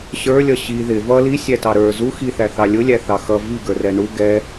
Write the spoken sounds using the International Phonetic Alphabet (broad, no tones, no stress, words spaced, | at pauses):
ɕə˞lʲʌ ɕi ðɪ vʌ lisʲætɑ ɾə˞ zu xiθæθɑ lʲʊlʲæθɑ xʌ viɡə˞rɛ ɳu ɡɛ